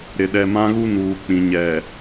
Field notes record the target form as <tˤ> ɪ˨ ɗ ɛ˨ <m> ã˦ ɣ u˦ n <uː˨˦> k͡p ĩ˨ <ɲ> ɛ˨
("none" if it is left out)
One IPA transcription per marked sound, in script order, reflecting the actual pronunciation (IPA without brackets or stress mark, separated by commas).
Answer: ɾ, m, uː˨, ɲ